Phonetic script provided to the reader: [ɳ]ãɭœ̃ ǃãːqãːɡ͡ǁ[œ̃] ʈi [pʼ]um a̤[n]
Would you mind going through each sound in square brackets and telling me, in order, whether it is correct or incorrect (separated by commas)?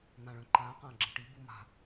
incorrect, incorrect, incorrect, incorrect